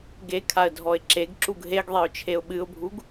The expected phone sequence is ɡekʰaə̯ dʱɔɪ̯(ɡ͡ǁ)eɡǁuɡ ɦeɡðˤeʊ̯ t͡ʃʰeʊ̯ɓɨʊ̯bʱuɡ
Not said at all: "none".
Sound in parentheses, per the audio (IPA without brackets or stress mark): ǁ